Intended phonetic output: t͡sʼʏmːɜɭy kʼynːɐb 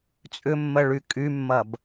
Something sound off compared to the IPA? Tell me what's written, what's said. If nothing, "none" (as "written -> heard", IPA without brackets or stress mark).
nː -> mː